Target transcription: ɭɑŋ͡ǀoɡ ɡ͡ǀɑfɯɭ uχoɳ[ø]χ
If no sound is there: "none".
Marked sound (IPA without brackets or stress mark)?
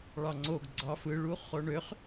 ø